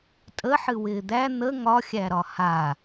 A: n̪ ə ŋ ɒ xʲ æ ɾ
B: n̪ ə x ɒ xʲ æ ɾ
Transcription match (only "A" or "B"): A